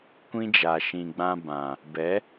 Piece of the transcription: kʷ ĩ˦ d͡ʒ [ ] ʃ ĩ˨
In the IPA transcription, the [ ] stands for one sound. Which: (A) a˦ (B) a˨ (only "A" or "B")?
B